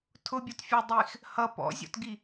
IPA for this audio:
tʰ ʊ bʲ ɔ t fʲ ə˞ dˤ i x | h ʌ p ɔ̰ zʲ ɔ̰ t ɡ i

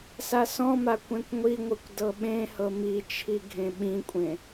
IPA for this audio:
s a s ɔ̃ m a kʷ ẽ kʷ ŋʷ i ŋʷ ɯ kʷ d ɤ ɓ ẽ h ɤ m i t͡ʃʰ i ɡʱ ẽ ɓ ĩ kʷʼ ẽ

